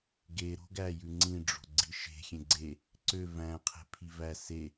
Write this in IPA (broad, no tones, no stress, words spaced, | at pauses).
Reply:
ɡe ɾo̤ɡæjʉ ŋ͡ǀĩɖ͡ʐo̤ ɡ͡ǀiʃe̤ xʲẽɡ͡ǀe | ǀø væ̃qʰe̤ pʰivæ se